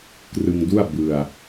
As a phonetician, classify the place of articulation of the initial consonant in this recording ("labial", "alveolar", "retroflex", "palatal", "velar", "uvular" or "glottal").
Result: velar